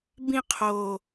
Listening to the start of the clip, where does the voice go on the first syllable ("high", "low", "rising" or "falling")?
falling